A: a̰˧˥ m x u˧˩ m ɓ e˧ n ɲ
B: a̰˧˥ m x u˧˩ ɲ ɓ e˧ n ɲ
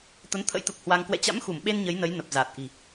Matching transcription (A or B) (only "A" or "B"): A